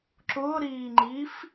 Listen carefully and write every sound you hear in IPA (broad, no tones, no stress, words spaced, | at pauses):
ǁʊːɾiːŋ͡ǃiːf